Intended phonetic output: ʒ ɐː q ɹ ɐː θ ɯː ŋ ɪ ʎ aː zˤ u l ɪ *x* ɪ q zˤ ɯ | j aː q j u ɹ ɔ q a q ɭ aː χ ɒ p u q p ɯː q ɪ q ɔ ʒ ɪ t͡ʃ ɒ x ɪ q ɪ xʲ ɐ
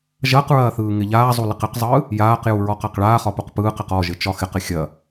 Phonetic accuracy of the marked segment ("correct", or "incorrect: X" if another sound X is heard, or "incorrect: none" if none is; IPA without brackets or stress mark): incorrect: q